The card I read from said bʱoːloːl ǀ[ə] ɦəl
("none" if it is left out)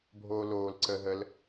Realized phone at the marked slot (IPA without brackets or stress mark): ə